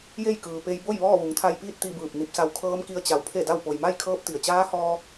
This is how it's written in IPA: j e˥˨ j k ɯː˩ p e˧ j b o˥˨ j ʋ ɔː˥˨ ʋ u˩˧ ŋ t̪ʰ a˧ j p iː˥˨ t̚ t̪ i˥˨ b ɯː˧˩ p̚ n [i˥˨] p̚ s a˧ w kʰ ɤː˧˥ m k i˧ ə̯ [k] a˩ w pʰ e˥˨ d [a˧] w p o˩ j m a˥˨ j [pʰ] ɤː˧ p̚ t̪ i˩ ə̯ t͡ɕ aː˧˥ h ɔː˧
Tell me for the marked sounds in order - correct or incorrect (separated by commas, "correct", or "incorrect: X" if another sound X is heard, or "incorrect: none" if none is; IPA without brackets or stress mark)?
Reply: incorrect: i˧˥, incorrect: t͡ɕ, incorrect: a˥˨, incorrect: kʰ